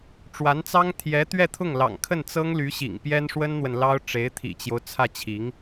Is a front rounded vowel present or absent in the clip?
present